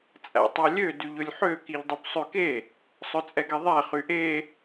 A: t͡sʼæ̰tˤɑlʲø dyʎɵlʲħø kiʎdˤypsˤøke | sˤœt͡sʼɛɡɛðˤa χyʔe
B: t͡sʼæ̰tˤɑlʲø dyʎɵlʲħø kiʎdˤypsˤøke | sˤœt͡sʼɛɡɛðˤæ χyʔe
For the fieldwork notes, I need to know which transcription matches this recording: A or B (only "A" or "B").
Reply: B